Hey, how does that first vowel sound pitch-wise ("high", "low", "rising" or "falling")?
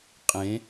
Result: rising